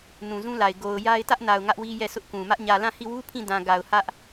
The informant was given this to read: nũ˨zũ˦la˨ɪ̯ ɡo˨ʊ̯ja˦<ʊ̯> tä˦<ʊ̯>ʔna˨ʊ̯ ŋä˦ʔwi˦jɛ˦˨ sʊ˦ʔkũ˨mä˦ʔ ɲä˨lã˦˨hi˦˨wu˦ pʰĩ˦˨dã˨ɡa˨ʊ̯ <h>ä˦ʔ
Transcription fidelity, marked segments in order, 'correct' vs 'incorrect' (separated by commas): incorrect, incorrect, correct